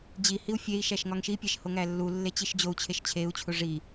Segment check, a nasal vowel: absent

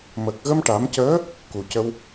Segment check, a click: absent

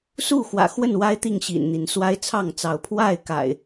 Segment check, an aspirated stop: present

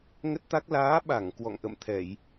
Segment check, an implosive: present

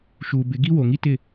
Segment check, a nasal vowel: absent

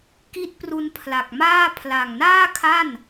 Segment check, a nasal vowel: absent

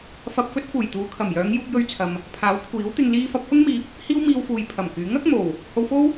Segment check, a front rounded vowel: present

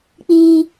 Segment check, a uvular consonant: absent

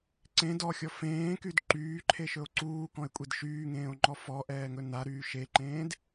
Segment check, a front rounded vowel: present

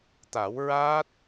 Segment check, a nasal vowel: absent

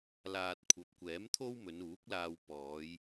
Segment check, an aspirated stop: present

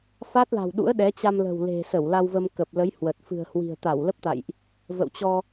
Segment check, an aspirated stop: absent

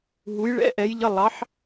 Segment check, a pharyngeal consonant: present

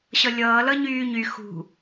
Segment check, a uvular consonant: absent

